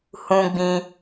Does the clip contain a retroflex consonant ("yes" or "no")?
no